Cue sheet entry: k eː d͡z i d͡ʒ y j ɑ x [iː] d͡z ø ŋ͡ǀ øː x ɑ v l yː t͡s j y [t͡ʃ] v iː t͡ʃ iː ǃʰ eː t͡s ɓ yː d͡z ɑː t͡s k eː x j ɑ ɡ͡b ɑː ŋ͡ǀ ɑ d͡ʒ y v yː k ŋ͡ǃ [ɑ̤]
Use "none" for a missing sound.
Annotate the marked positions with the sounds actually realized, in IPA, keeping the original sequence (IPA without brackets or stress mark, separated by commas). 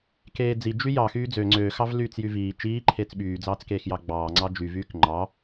yː, none, ɑ